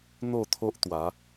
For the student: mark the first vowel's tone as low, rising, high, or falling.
falling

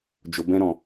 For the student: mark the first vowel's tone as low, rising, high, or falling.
low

